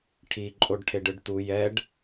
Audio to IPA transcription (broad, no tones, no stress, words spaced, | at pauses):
ʈʰi ǃʼoɖʈʰeɖɯɖtu jɛɖ